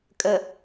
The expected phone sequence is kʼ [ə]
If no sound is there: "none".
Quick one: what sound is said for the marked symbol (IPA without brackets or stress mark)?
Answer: ə